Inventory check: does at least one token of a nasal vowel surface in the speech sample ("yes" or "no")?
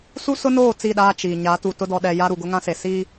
yes